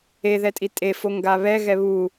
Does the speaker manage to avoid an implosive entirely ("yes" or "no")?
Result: yes